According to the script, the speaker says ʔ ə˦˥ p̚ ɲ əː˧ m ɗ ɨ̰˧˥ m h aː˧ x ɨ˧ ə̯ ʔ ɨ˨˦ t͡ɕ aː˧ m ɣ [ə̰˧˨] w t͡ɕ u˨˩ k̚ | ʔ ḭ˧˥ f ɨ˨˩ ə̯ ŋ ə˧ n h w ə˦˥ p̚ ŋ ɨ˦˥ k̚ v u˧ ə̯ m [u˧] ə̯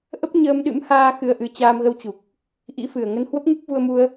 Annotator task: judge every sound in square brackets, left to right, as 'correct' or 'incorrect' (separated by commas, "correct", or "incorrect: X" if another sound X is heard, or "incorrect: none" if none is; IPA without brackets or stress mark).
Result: incorrect: ə˧, correct